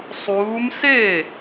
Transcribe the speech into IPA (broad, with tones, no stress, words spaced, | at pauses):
sˤuː˨˦mse˥˩